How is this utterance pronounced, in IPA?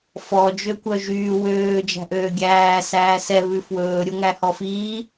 f ɔ d͡ʒ ø kʷ œ ʒ yː w øː d͡ʒ æ̤ ʔ øː ɡʲ æː s æː s ɛ β ʉ f w ɵː ɾʲ o ŋ æ h ɔ f iː

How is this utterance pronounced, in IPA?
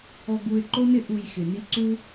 ɔ˧ ɡ u˧ ɪ̯ ǃ o˦ n ɪ˦ ʔ u˧ j x ɪ˨ n i˦ ǀ u˧

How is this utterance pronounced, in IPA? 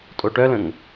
tʼ o ʈ œ l ə̃ ŋ

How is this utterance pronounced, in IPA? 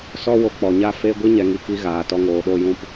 s ɔ˧ w o˨ k͡p ɔ˨ ɲ a˦ f e˦ ɡʷ i˦ ɲ ɛ˨ ŋ i˨ k i˧ ɣ aː˨ t ɔ˧ ŋ oː˨ ɗ o˦˨ j ũ˦˨ p

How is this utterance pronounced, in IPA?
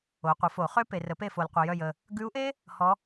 o˩˥ qʷ ə˩˥ f o˨˩˦ χ ø˥ p e˨ r ə˨˩˦ p e˦˨ f o˨ l qʷ œ˨ j œ˦˨ j ə˨ | ɡ ʉ˧˥ u̯ ʔ e˥ | h ɔ˧˥

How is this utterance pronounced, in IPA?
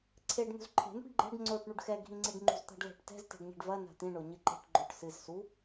ǀʰ e ɖ n̪ ṳ z ǃʰ e̤ n̪ ṳ ɖ ɡ͡ǃ ɛ̤ ɖ ŋ͡ǀ o ʈ ɳ u ɖ x ɛ ɡʱ ĩ ŋ͡ǀ i ɖ ŋ͡ǃ ṳ z t̪ a̤ ɖ l ɛ̤ ʈ t ɛ̤ z t e̤ ɖ ɲ ɛ̤ ɖ v ɐ n a̤ t̪ ĩ ɳ o ɲ ɨ ǃ e̤ ʈ ɡ͡ǃ o ʈ s ɨ z s u

